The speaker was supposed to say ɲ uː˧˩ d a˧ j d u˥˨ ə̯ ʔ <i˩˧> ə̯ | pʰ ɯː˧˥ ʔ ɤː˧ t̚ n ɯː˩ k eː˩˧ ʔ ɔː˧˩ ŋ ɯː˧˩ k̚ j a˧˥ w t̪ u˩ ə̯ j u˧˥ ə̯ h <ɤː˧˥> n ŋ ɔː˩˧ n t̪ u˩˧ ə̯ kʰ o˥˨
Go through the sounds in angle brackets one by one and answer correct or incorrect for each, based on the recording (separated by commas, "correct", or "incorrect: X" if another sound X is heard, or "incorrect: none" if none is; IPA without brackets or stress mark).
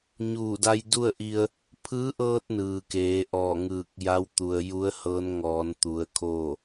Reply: incorrect: i˧, correct